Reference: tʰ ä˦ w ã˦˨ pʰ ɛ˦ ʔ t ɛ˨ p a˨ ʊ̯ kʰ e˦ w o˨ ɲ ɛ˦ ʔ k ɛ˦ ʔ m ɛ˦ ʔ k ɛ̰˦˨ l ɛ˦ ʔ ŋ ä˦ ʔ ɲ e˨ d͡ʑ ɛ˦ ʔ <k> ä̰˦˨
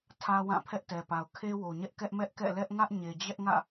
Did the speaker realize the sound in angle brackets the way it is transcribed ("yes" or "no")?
no